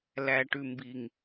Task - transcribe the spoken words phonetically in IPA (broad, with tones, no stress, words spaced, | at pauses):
læ˨ʈʉ˨mbi˨ŋ